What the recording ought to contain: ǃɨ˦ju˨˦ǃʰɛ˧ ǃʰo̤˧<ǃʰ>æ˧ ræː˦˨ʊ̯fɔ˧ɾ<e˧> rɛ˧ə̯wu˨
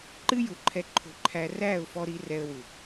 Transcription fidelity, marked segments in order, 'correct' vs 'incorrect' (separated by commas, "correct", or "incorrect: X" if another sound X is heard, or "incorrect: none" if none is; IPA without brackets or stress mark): correct, incorrect: i˧